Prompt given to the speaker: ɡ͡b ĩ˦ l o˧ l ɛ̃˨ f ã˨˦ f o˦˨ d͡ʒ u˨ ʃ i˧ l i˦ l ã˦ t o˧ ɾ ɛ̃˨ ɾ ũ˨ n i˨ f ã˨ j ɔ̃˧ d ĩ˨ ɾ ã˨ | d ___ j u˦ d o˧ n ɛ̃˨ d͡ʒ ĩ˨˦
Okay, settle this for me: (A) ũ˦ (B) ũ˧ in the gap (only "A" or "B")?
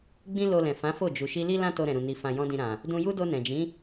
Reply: B